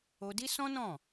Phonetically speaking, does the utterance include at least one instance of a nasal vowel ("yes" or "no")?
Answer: yes